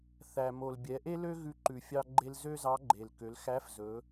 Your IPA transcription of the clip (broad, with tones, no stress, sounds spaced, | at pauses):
θ æ˩ m o˩ l bʲ ɛ˩˧ ʔ e˥ l ø˥ ɣ ʉ˧ ǃ ʉ˩ fʲ ɑ˧ ɡ͡ǃ e˧ l z ø˥ z ɑ˧˥ ɡ͡ǃ e˩ l k ø˩˧ l x æ˧˥ f z ɵ˩˧